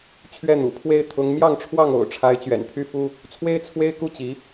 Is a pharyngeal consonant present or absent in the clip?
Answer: absent